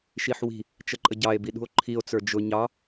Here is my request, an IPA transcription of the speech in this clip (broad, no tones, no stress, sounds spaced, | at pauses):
ʃ i ħ w i̤ | t͡ʃ ə ǃʼ ə ɟ ɑ e̯ b i ɗ ṳ o̯ ǃʰ i o̯ t͡s ə˞ d͡ʒ ʊ ɲ ɑ